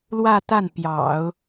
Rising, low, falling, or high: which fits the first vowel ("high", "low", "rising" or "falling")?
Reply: falling